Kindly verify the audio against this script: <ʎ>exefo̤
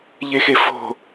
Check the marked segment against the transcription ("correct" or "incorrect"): correct